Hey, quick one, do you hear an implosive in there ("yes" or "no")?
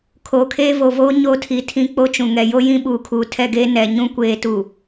yes